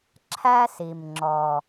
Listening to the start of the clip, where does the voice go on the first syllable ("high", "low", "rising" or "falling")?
high